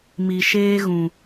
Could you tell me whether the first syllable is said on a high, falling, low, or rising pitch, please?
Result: low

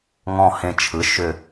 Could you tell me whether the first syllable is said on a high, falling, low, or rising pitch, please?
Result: low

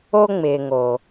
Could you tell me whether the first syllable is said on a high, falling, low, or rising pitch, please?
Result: high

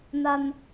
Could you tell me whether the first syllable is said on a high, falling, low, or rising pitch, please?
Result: low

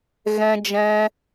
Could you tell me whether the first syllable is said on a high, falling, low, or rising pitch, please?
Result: high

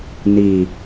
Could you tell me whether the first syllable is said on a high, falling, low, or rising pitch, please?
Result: low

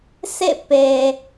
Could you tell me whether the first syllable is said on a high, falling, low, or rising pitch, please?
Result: falling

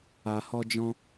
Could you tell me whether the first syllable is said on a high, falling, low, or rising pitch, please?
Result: low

